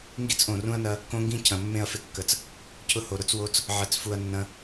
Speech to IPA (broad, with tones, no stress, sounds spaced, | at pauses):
ŋ ɡ i˦ t͡s ʔ õ˨ r ũ˦ ɐ̯ n ɐ˦ | k õ˦ ŋ ɡ ĩ˦ cʰ ɐ̃˨ mː ẽ˦˨ ɐ̯ f ɪ˦ kː ə˨ t͡s | cʰ ʊ˦ h o˨ ɾ ʊ˦ t͡s w o˦ t͡s | ʕ ɐ˨ t͡s f u˨ ɐ̯ nː ɐ̃˦